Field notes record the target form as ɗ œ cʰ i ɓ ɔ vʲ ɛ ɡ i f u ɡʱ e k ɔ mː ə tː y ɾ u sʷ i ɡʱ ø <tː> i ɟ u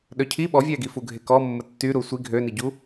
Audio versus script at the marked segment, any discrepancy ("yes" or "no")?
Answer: yes